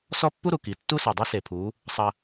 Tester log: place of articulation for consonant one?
alveolar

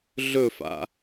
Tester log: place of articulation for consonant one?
alveolar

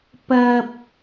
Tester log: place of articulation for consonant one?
labial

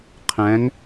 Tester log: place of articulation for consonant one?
uvular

